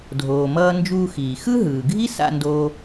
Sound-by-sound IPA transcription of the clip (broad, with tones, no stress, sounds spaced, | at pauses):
dʱ oː˩ m ʌː˧ n d͡ʒ uː˧ x iː˩ x ɯ˥ ɦ ɯː˩ ɡʱ i˥ s a̰˧ n d oː˧